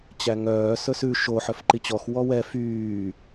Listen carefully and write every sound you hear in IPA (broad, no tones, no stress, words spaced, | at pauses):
t͡ɕæŋœː sɵsʉ ʃo ħœfǃit͡ɕɔx wɔwɛ fyː